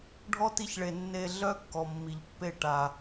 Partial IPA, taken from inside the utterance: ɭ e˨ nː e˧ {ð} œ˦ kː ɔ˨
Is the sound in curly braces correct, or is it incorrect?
incorrect